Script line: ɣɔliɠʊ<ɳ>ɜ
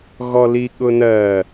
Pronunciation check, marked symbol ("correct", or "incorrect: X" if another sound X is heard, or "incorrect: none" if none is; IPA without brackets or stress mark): incorrect: n